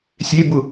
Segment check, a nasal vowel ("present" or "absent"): absent